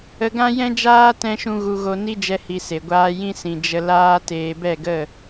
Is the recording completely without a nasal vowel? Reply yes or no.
no